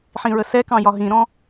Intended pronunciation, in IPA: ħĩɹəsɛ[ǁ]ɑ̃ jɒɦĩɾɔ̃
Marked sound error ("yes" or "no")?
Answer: yes